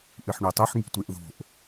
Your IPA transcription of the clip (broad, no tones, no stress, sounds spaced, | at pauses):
ʔ ɨ ħ ɳ o tˤ ɵ ħ ŋ i̤ tʷ e ʔ ð o̤ ʔ